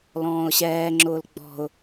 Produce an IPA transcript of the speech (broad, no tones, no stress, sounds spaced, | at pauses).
l ɔ̃ː ʊ̯ ɕ ɛː ŋ͡ǁ ʊː l ɡ͡b ɔ̤ ʊ̯